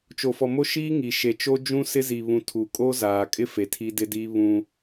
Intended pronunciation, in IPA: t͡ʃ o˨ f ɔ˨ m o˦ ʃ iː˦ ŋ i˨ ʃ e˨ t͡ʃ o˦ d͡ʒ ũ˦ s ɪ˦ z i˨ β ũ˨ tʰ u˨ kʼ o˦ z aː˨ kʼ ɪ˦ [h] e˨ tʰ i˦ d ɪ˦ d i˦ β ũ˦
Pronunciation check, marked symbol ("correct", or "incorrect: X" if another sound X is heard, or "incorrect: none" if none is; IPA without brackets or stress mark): incorrect: f